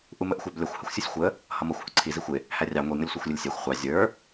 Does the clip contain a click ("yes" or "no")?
yes